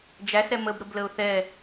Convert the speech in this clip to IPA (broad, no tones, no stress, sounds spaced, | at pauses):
d͡ʒ æ s ɾ ɛ m ə b ɾ ə b l ə ʊ̯ θ ɛ